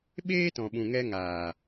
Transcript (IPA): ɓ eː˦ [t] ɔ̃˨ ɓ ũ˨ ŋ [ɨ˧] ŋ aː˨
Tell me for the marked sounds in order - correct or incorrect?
correct, incorrect: ɛ˧

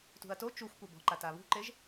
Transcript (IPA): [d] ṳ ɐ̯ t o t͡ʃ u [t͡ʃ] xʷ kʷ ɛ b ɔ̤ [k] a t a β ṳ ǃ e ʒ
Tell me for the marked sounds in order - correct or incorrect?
incorrect: t, incorrect: none, incorrect: ǃ

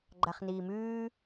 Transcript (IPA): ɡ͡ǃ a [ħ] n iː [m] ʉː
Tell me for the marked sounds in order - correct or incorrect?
incorrect: χ, correct

